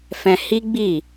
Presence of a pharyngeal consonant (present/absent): absent